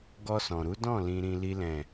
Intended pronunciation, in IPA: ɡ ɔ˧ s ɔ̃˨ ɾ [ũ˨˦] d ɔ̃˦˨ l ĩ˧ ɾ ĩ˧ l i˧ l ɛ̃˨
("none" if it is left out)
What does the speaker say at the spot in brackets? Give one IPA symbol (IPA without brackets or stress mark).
u˨˦